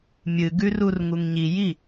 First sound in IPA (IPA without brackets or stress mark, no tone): mʲ